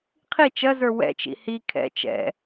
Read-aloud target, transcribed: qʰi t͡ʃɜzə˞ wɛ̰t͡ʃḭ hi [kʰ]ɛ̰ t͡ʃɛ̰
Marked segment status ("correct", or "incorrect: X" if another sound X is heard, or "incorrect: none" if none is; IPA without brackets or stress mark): correct